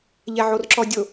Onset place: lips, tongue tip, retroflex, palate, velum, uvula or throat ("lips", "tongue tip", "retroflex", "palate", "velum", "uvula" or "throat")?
palate